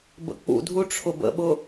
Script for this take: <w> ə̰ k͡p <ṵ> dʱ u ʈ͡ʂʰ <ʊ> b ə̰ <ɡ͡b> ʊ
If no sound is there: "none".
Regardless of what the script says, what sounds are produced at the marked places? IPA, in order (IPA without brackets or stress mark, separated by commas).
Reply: b, ṵ, ʊ, ɓ